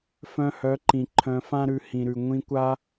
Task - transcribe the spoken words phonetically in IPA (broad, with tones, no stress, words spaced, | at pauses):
fœ̃˧hœ˨˦ǃĩ˨ ǃʰœ̃˧fã˦ɾʉ˧ hĩ˨ɾʉ˨ ŋʷĩ˧kʷa˦